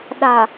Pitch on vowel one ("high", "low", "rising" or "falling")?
low